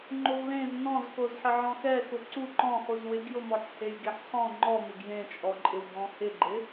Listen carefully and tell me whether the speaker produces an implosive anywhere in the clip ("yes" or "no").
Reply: no